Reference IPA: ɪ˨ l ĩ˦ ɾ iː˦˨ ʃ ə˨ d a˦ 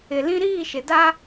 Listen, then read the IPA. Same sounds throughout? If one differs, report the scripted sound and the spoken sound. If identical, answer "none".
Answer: ə˨ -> ɪ˨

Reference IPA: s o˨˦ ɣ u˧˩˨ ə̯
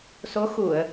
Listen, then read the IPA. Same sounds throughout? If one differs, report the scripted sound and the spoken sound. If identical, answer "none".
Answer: ɣ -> x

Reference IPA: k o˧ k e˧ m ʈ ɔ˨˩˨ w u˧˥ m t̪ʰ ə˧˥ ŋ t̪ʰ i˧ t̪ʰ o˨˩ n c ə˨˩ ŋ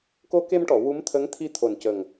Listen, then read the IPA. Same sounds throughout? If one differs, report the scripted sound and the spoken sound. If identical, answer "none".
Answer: none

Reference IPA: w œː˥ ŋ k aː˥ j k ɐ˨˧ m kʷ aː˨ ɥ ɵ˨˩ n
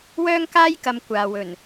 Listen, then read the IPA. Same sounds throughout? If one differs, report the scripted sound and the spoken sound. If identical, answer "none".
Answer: ɥ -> w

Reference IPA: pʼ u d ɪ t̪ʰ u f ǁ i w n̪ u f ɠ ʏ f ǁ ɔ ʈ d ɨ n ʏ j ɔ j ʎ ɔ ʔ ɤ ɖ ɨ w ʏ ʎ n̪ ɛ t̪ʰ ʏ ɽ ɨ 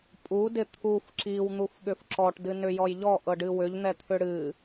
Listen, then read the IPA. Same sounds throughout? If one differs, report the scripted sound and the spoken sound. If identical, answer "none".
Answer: none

